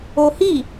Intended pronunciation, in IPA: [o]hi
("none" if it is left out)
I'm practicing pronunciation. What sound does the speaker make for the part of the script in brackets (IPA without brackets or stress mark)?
o